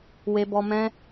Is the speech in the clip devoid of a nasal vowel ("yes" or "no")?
no